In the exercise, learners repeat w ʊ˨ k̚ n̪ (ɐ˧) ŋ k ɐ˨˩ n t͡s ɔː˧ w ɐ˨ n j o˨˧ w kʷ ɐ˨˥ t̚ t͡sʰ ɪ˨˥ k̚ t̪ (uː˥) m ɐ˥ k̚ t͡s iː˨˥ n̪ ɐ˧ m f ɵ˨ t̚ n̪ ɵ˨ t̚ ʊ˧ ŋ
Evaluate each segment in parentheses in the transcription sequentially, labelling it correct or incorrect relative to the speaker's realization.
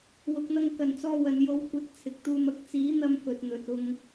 correct, correct

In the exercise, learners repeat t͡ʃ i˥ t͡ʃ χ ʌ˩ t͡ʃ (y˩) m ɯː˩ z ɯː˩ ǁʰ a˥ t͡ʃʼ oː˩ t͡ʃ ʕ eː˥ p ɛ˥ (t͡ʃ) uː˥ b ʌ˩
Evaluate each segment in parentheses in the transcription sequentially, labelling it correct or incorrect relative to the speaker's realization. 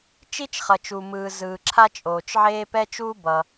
incorrect, correct

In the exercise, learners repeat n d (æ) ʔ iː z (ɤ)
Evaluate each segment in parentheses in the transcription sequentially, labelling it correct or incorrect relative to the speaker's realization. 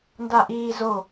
incorrect, incorrect

